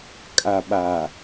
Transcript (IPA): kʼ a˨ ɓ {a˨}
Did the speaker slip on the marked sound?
no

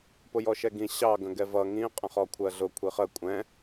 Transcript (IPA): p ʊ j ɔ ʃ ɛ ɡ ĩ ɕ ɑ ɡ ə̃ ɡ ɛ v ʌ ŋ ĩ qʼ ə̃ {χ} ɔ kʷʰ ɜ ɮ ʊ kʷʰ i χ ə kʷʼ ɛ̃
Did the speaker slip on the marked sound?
no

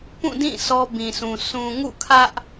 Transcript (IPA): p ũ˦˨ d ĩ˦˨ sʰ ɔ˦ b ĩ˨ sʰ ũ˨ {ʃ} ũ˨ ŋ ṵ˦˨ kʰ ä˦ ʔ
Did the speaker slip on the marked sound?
yes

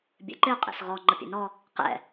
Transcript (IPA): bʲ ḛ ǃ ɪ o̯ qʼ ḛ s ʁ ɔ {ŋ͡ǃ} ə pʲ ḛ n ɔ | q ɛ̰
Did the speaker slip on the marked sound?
no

